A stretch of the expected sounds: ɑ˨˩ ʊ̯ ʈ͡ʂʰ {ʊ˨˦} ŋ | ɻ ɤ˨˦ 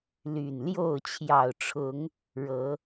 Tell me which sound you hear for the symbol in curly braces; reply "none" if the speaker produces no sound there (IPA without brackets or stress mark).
ʊ˨˦